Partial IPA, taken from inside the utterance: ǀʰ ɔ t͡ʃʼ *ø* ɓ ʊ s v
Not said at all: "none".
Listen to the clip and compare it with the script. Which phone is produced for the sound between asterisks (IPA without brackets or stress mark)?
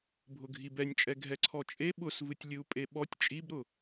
e